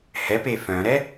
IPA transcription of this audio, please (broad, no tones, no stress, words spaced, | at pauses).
hɛpe fœ̃ɾɛ